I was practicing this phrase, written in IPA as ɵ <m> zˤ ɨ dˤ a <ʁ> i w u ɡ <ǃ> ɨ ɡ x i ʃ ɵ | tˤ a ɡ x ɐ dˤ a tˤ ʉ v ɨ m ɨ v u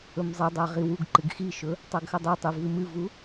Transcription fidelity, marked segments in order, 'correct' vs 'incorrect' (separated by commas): correct, correct, correct